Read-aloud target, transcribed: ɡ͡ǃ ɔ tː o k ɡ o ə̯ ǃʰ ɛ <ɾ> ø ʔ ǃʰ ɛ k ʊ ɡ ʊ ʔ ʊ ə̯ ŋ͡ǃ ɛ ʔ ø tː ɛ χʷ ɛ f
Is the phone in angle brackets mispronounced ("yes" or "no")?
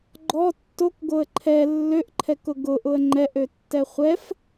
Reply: yes